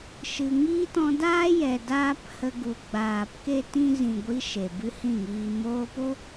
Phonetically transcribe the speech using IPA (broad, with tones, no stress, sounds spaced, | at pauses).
ʃ ɨ˧ ŋ i˦ t ɔ̃˧ d aː˦ j ɛ˨ d aː˦ p h ə˧ ɡ u˨ ɡ͡b aː˨ p k e˦ t ĩ˦ z ĩ˨ ɡʷ i˧ ʃ e˨ b ɨ˦ h ĩ˦˨ ŋ iː˧ m oː˧ p o˦